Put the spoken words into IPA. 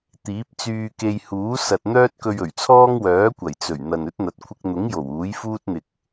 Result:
t̪ iː˨˥ p̚ t͡s yː˧ k e˧ j h uː˨˥ s ɐ˨ t̚ n̪ œː˥ t̚ k ɵ˧ ɥ ɵ˨˩ ɥ t͡sʰ ɔː˥ ŋ w œː˨˥ kʷ ɐ˨˩ j t͡s ɵ˨˩ ɥ n̪ ɐ˨ n ɵ˨˥ t̚ n̪ ɐ˨ t̚ kʷʰ ɪ˧ k̚ n̪ ʊ˨˥ ŋ j o˨˩ w uː˨˥ j f uː˥ t̚ n̪ ɪ˨ k̚

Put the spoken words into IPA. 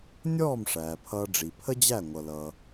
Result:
nʲ ɔː˦˨ m ʂ æː˨ pʰ ʌː˧ ɖ͡ʐ i˨ pʰ ə˦ d͡ʑ æ˦˨ ŋʷ ʌ˧ l ʌː˧

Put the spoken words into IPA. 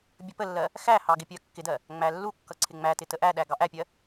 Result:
bʲ ə p ə lː ɜ | x æ h ɑ ɡ ɪ pʲ ɜ kː ɪ d ɜ | ŋ͡m æ lː u kː ʌ ǀʰ ɪ ŋ͡m æ t ɪ t ə ʔ æ ɗ æ ɡ ɑ ʔ æ pʲ ɜ

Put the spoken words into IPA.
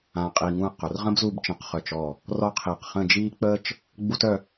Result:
ãː˧ qʼ iː˧ ŋ ũ˥˧ ɐ̯ q ʊ˩˧ r ʁ ə̃˥ b z u˥˧ b t͡ʃ ə̃ː˧ q χ œ˧˩ t͡ʃ ɔ˧˩ | r ɔ˥ qʰ iː˧˩ q χ ə̃˥˧ d͡ʒ iː˥ k͡p əː˥ t͡ʃ | ɡ͡b u˥ t œ˥˧

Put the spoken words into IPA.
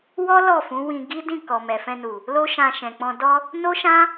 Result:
w ɔ˦ l ɔ˦˨ f ũ˨˦ w ĩ˧ ɡ i˦ d ĩ˦˨ k ɔ˨ m ɛ˨ f ɛ̃˧ n u˨ | l o˦ ʃ ã˧ ʃ ɛ̃˨ k͡p ɔ̃˧ d ɔ˧ | n o˦ ʃ ã˦

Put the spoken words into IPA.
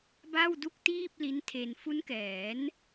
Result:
b a˥˩ w d u˥˩ k̚ t iː˥˩ p̚ l i˦˥ n tʰ e˧ n f u˦˥ n k ɛː˩˦ n

